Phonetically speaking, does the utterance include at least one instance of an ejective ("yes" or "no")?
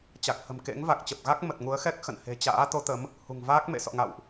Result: no